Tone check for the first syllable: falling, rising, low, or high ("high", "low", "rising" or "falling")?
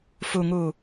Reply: low